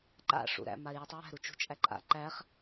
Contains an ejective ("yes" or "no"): yes